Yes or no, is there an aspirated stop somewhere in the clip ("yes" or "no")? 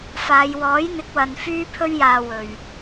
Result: yes